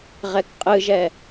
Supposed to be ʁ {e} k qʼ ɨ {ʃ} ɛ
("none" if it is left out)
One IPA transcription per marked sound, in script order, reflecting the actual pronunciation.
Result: ɛ, ʒ

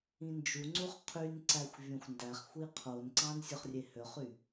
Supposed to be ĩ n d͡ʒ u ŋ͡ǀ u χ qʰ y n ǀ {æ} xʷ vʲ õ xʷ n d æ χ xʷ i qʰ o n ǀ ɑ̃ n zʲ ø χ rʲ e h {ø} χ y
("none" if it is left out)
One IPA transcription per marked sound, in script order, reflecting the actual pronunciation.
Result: æ, ø

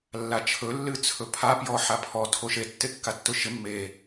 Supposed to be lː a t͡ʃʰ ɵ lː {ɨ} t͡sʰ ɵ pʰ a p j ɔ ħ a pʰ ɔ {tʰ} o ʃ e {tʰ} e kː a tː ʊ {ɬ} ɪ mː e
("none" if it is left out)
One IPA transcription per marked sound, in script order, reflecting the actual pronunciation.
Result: ɨ, tʰ, tː, ʃ

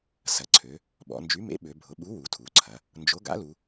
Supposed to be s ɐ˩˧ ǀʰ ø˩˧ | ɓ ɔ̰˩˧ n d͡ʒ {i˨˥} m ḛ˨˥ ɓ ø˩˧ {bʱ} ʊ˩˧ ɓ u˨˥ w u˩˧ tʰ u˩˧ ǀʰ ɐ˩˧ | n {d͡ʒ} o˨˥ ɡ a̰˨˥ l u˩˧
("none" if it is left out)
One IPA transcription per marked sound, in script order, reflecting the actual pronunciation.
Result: y˨˥, bʱ, d͡ʒ

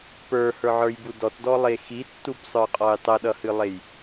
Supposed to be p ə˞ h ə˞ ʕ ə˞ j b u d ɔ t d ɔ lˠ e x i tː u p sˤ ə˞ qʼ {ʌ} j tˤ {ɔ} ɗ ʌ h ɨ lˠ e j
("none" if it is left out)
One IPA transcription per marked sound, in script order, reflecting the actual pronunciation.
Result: ɔ, ɤ

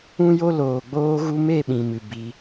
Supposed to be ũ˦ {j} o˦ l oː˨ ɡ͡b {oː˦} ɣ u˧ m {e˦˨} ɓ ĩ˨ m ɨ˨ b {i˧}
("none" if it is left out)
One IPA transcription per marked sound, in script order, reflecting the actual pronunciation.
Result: j, oː˧, e˦˨, i˧

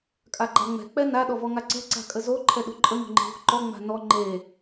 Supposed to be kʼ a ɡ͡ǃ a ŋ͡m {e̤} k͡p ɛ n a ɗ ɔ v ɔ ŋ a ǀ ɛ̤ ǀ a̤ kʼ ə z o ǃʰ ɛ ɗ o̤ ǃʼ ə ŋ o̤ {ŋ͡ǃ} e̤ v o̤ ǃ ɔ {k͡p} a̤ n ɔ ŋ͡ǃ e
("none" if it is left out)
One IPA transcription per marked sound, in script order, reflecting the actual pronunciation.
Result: ɛ̤, ŋ͡ǃ, ŋ͡m

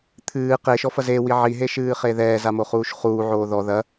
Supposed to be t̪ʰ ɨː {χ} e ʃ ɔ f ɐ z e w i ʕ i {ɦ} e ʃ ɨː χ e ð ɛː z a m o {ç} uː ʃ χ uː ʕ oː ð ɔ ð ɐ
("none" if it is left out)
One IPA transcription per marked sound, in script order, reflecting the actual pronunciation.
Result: q, ɦ, χ

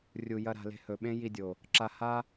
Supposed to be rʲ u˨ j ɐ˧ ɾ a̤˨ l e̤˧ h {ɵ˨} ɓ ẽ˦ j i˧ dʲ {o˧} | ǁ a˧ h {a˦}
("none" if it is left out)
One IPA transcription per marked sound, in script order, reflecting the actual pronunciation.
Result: ɵ˨, o˨, a˦

